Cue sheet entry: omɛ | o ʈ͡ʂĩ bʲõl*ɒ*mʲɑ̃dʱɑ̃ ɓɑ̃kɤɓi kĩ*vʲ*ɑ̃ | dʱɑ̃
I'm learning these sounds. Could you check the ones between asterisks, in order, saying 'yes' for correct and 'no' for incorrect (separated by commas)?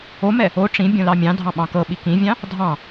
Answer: no, yes